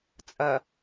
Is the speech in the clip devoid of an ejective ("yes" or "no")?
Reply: no